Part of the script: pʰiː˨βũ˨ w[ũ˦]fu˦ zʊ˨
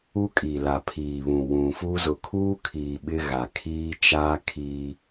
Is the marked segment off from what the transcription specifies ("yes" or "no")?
yes